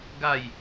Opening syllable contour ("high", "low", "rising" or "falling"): low